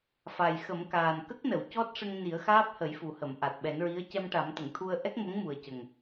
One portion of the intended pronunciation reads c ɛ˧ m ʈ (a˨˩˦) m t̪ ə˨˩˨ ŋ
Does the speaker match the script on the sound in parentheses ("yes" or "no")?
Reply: yes